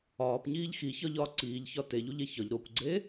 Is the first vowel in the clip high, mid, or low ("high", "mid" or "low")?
low